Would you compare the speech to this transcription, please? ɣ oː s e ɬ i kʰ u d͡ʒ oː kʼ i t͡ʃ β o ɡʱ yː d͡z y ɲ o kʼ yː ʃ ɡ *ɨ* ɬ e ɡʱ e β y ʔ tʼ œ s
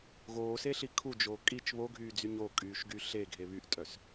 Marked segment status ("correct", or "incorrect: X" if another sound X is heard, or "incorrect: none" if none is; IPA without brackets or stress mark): incorrect: y